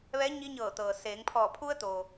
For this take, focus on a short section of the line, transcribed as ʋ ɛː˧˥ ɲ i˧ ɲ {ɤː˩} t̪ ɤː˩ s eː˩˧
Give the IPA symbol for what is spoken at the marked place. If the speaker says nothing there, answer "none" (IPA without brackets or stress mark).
ɤː˧˩